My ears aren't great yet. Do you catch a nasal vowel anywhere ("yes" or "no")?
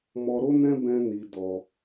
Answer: yes